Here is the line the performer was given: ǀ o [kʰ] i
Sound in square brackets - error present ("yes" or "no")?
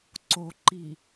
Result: yes